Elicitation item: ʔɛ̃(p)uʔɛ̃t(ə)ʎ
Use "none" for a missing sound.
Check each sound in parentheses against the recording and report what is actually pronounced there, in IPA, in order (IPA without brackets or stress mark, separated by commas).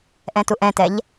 t, ɛ